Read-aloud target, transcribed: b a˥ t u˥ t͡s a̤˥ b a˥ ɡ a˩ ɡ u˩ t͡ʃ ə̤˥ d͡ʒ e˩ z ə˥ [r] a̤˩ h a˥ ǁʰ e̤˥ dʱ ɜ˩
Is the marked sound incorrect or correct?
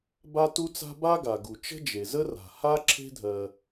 correct